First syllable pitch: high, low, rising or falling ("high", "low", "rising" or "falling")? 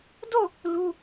falling